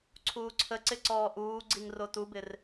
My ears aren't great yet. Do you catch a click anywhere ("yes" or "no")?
yes